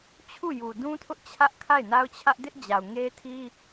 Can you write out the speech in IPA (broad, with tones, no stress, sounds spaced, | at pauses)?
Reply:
t͡ɕʰ u˦˨ j u˨ d ũ˦ tʰ ʊ˦ ʔ t͡ɕʰ ä˦ ʔ kʰ a˦˨ ɪ̯ n a˦ ʊ̯ t͡ɕʰ ä˦ ʔ d ɪ˦ ʔ d͡ʑ a˨ ʊ̯ ŋ e˦ tʰ i˦